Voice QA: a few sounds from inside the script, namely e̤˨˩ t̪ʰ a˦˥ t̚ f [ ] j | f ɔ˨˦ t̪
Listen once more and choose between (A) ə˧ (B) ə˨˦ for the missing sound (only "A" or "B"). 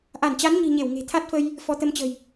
A